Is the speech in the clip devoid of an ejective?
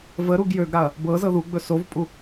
no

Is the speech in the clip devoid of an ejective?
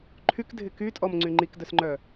no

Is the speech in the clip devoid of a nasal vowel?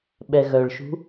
yes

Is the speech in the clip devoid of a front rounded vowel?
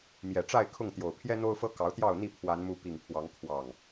yes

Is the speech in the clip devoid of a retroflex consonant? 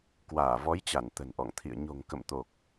yes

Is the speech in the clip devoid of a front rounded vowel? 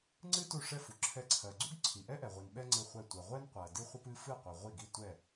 yes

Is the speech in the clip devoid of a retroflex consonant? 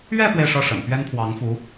no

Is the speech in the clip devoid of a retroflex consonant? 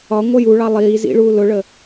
no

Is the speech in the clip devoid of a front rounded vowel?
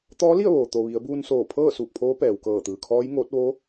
yes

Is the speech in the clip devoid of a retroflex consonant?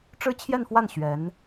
no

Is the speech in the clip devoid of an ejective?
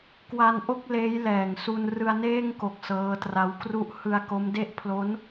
yes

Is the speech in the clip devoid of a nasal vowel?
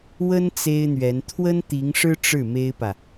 yes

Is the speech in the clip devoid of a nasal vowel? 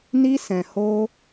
no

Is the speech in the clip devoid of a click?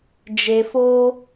yes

